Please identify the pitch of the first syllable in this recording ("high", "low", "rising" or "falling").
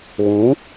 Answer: rising